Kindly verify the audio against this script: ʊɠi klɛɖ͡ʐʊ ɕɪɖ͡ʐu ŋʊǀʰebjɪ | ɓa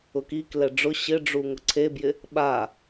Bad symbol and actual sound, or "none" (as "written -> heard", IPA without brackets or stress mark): ɠ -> k